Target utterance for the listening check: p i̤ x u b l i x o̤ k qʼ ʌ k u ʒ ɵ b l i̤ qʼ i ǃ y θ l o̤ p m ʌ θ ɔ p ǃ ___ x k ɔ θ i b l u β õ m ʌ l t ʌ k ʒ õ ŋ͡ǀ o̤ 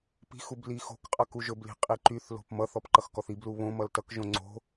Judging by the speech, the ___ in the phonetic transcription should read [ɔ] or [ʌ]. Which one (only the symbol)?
ʌ